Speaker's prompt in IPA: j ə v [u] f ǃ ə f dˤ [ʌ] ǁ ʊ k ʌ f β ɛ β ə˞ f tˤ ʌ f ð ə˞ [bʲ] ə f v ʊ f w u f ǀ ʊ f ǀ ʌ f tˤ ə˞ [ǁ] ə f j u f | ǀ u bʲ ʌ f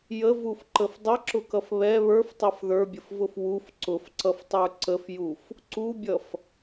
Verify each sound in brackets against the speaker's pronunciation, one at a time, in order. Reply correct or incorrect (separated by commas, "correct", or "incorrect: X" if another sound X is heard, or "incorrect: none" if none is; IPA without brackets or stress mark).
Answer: correct, correct, correct, incorrect: ǀ